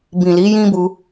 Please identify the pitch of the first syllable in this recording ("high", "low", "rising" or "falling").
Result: low